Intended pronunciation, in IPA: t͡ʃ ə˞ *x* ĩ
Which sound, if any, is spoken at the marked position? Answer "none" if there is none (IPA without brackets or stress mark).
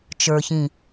ç